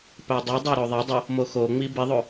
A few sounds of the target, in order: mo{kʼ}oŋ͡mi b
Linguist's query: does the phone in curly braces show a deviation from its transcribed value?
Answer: yes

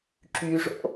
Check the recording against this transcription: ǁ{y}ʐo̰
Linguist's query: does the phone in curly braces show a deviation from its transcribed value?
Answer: no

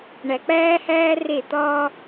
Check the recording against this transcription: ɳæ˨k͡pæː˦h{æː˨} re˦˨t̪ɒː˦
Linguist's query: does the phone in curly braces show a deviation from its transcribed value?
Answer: yes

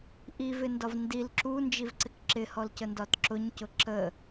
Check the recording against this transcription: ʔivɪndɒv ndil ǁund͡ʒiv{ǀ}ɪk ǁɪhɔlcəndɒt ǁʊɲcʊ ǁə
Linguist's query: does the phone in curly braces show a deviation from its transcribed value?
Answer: no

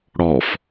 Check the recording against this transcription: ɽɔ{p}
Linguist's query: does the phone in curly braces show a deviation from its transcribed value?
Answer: yes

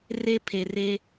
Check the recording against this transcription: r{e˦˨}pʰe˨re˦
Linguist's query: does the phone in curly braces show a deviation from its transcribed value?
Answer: yes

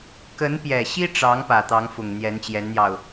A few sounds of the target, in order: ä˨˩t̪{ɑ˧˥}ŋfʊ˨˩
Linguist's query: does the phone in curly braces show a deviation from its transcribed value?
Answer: no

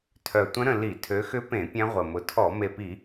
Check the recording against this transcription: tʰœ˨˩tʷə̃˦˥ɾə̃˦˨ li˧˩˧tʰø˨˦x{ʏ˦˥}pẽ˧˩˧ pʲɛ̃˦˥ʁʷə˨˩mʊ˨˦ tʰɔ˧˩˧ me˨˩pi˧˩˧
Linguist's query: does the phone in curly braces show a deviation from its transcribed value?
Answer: no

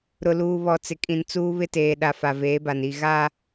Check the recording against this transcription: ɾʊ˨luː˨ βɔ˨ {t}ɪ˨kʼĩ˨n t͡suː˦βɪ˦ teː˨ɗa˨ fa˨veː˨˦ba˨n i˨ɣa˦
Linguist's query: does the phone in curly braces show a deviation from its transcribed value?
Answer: yes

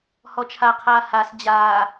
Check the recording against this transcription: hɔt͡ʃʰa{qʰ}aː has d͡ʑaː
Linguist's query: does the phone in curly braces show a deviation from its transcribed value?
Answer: no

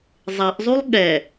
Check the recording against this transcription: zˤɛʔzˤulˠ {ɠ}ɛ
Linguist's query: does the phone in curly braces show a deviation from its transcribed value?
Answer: no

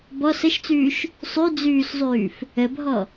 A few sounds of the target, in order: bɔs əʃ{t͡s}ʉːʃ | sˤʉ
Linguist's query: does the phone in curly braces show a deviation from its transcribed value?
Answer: no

